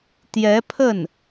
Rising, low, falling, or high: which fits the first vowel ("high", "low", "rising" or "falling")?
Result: rising